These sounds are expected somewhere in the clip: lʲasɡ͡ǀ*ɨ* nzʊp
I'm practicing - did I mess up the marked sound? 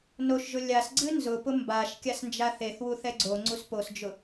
no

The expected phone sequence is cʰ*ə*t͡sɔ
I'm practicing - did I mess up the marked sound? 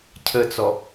no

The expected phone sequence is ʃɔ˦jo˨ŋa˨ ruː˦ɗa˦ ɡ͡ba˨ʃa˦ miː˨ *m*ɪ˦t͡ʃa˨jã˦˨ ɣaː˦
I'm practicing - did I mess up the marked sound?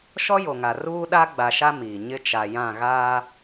yes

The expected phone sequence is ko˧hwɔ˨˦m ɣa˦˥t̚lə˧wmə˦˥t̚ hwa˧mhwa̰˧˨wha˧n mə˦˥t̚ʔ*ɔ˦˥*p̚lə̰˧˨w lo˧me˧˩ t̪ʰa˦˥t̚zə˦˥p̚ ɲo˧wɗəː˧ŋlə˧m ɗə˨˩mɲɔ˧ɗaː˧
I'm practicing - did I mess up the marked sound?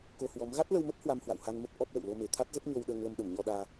no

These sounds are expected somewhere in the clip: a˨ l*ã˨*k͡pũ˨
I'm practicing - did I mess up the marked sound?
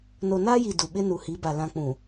no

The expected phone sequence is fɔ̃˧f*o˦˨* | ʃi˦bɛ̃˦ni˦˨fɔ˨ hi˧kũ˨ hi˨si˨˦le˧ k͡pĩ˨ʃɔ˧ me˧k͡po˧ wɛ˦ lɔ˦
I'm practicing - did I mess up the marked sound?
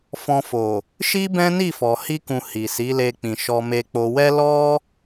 yes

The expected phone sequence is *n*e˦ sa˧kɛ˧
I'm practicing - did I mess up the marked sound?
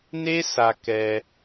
no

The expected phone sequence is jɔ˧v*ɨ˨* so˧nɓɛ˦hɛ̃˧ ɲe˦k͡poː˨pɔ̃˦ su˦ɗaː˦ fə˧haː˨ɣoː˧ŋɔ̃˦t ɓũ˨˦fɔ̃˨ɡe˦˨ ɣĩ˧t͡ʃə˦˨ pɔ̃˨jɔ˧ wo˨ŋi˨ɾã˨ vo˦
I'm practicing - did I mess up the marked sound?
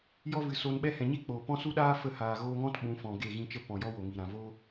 no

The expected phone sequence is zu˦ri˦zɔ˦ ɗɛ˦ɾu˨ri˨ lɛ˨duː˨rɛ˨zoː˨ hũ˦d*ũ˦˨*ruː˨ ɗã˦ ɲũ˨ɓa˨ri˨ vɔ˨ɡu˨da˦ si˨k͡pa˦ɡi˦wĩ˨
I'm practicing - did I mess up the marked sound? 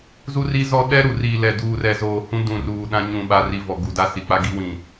yes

